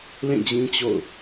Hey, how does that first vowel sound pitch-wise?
falling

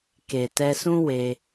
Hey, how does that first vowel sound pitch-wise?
low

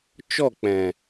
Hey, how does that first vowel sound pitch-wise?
falling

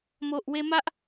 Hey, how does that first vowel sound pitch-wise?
low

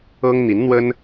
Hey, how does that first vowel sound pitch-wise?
high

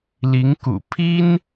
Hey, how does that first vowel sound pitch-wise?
rising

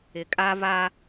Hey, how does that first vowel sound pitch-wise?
low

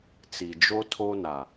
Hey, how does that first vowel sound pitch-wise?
low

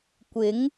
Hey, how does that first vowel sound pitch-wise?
rising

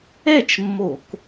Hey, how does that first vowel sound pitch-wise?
falling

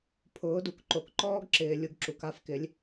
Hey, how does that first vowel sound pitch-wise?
rising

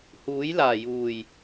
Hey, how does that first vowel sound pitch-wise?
rising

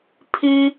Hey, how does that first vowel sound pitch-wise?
high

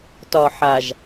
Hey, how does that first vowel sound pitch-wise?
low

